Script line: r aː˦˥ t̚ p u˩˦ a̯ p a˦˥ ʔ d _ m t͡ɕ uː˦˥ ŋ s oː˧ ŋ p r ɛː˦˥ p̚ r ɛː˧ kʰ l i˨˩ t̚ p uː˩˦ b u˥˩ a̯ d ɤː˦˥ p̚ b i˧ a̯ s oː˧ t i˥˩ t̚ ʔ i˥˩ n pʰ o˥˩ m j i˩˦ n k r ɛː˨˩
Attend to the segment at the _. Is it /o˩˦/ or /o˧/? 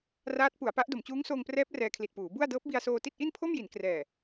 o˩˦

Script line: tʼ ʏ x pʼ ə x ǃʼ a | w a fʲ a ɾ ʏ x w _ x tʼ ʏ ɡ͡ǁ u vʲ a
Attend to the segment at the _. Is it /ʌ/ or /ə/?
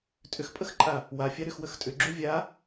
ə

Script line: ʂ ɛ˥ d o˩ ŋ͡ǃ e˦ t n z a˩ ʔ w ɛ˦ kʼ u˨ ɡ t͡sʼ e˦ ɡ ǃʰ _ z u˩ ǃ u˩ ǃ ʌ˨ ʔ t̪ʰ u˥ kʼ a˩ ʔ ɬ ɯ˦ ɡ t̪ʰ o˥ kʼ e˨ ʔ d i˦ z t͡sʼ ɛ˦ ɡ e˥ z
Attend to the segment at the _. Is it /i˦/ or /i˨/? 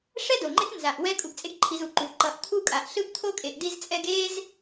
i˨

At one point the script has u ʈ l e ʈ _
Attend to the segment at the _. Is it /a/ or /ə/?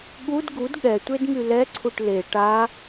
a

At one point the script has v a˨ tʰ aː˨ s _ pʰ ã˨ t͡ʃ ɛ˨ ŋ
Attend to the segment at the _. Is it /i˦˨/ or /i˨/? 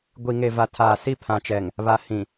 i˦˨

